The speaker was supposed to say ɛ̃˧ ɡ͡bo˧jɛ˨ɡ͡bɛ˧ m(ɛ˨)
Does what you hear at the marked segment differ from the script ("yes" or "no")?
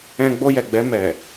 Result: no